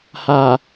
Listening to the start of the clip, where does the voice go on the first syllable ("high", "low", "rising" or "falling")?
low